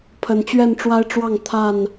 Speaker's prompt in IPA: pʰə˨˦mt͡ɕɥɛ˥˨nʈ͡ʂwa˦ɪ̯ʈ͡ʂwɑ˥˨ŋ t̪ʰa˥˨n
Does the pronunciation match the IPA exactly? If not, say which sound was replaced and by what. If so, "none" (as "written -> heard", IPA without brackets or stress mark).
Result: m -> n